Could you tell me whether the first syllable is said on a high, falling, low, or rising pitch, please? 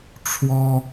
high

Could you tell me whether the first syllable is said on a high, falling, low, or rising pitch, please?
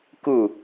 falling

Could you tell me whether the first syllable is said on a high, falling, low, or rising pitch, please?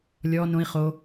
low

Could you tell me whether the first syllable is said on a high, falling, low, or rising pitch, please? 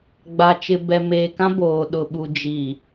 low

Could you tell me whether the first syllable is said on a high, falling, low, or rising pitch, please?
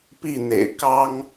falling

